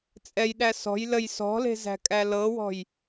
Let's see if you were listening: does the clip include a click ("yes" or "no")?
no